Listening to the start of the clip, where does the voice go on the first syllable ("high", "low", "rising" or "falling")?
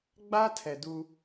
high